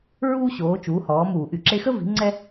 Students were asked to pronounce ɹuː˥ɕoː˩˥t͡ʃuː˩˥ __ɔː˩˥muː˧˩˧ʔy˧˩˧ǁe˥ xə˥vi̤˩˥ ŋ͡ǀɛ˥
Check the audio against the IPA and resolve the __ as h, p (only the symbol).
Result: h